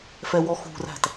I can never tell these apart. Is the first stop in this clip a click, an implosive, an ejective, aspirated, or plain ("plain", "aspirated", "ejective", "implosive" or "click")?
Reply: plain